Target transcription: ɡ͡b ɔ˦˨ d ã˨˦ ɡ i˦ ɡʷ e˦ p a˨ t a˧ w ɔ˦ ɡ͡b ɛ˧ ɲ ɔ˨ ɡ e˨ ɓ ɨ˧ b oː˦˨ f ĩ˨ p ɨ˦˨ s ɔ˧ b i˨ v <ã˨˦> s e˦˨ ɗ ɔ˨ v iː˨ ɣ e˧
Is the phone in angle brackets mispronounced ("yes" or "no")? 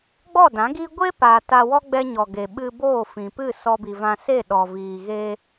yes